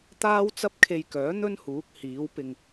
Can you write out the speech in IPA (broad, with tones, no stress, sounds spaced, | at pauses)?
t̪ aː˥ w t͡s ɐ˥ p̚ kʰ e˧ j k œː˨˥ n̪ ɵ˥ n h uː˨˥ k̚ h iː˨˥ w p ɪ˧ ŋ